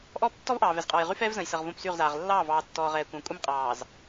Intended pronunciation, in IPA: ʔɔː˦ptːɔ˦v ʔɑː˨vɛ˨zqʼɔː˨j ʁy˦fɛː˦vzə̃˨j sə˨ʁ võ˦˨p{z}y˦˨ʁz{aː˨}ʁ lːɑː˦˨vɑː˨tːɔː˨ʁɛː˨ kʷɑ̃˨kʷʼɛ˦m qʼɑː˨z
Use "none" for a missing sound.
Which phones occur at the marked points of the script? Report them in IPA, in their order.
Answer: s, aː˨

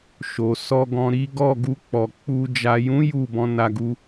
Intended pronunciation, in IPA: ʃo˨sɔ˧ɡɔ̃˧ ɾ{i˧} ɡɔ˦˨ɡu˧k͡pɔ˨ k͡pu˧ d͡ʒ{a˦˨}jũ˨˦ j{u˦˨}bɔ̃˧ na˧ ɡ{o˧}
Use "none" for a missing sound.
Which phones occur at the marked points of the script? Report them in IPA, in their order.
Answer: i˦, a˨, u˦˨, u˧

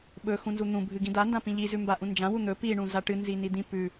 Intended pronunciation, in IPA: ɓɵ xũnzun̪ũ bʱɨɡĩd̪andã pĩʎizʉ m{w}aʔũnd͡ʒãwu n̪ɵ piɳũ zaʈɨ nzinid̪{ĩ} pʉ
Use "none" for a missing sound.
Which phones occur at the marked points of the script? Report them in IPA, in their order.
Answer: b, ĩ

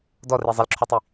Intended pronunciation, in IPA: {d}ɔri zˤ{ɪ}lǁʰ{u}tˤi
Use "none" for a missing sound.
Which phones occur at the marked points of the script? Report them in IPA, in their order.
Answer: d, ɪ, u

